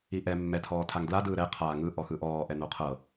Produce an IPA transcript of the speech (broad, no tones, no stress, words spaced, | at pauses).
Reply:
iʔɛ mːɛtʰɔːtʰaŋ dladɯː ɾɛqʰaː ŋɯ ʔɔxɯʔɔːʔɛ noqʰɤ